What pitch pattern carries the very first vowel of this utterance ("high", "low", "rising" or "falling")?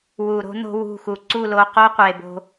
low